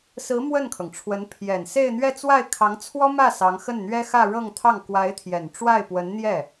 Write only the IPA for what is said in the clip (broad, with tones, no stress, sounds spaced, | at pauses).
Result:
s ɹ̩˧˥ m w ə˥˩ n kʰ ɤ˩ ŋ ʈ͡ʂʰ w ə˧˥ n pʰ j ɛ˨˩ n s e˥˧ ɪ̯ n̪ ɥ ɛ˥˧ t͡s w a˥˩ ɪ̯ kʰ ɑ˧˥ ŋ t͡sʰ w ɔ˥ m ä˥˩ s ɑ˧˥ ŋ x ə˥˩ n n̪ ɥ ɛ˥ x ä˥˧ ɻ ɤ˥˧ ŋ t̪ʰ ɑ˥˩ ŋ k w a˧˥ ɪ̯ t̪ʰ j ɛ˨˩ n ʈ͡ʂ w a˥˩ ɪ̯ p w ə˧˥ n n̪ j ɛ˥˩